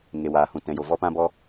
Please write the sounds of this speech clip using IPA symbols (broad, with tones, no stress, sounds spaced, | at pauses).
ŋ e˨ w aː˨ h ũ˨ t ɛ̃˨ j o˨ v ɔ˦ p ã˦ b ɔ˦